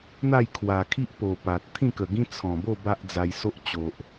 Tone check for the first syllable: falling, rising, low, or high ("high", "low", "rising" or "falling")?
falling